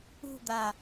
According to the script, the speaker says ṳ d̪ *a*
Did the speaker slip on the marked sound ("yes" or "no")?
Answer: no